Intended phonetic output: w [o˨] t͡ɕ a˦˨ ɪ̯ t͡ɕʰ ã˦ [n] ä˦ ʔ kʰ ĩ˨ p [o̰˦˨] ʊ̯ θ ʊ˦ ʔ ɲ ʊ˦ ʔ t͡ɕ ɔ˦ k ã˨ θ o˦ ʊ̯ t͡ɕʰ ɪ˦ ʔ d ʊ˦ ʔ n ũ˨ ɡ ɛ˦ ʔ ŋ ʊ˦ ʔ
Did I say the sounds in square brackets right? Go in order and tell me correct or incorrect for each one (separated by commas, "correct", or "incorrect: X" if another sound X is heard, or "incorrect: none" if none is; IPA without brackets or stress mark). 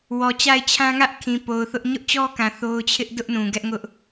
incorrect: ɔ˨, incorrect: ŋ, incorrect: o˨